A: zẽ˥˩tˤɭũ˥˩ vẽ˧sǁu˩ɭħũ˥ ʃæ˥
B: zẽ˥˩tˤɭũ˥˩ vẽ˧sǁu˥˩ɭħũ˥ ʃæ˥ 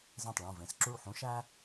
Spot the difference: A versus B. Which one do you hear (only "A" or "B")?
B